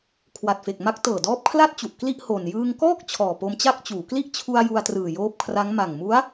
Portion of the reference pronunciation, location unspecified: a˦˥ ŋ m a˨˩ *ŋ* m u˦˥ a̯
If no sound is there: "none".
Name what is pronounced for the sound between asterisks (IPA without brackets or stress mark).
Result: ŋ